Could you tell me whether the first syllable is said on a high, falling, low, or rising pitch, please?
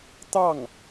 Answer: falling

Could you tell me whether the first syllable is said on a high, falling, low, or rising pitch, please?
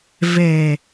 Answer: low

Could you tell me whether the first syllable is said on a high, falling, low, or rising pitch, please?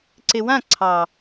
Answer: low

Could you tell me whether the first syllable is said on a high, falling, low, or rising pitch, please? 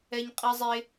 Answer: high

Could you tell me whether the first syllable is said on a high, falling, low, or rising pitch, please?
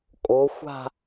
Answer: rising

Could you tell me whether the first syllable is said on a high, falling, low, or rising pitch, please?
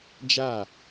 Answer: falling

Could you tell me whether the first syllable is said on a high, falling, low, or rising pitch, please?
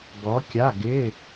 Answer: rising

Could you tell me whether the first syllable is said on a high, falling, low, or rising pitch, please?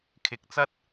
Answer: low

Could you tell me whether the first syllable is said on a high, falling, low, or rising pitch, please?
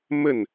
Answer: falling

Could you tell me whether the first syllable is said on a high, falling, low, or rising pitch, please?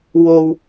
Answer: low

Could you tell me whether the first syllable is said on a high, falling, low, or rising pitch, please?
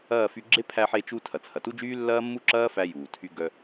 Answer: falling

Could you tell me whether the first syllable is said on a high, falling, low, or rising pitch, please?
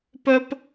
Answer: high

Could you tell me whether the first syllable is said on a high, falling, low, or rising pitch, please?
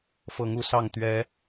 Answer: rising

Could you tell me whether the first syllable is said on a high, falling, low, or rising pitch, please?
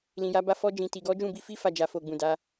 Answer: low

